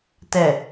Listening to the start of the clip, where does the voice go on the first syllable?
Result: low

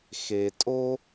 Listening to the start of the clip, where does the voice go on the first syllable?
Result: low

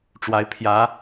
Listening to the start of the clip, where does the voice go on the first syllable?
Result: rising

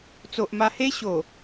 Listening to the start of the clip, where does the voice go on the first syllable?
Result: low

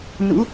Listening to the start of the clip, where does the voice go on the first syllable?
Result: rising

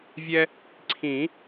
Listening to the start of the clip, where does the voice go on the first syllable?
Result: high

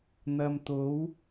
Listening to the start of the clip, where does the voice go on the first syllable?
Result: low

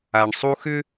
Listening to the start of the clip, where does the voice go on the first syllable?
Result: low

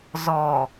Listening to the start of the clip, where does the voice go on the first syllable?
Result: low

